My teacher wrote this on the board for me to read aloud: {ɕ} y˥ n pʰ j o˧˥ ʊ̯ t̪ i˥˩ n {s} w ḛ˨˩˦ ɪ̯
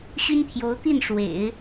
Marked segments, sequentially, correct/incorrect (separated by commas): correct, incorrect